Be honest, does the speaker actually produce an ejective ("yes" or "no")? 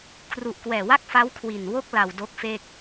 no